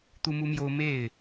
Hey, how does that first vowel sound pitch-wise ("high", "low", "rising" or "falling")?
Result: high